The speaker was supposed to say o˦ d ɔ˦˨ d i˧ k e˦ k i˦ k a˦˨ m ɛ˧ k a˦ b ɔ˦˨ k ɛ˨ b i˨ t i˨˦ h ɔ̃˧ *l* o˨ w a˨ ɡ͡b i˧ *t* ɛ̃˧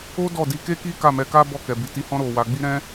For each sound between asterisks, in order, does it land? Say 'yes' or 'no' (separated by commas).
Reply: no, no